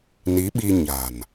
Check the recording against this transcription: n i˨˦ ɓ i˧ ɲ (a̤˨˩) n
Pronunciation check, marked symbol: correct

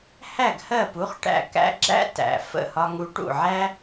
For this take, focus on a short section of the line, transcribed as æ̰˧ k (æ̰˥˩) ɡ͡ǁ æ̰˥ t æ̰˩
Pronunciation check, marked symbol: incorrect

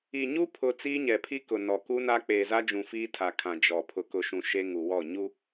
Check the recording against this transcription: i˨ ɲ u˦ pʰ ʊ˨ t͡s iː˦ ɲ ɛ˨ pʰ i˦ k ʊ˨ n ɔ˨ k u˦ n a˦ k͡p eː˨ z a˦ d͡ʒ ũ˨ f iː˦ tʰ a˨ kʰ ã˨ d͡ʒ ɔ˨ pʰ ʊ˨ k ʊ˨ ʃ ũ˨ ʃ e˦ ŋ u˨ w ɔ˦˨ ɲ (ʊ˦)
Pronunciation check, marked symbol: incorrect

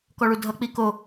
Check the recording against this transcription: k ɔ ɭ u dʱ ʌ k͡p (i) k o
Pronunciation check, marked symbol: correct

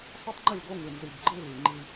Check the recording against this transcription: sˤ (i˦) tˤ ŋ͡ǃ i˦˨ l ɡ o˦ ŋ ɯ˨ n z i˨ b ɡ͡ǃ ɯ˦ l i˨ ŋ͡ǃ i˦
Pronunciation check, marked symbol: correct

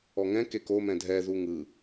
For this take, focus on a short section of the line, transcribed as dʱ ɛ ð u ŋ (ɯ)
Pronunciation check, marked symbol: correct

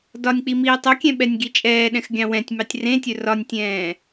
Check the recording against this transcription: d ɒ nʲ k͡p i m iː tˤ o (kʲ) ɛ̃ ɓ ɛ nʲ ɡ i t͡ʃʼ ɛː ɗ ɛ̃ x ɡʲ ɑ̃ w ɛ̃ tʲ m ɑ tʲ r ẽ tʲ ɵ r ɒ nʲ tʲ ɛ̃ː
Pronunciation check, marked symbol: correct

